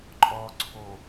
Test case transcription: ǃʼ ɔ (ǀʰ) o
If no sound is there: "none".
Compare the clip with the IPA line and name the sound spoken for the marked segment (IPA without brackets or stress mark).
ǀʰ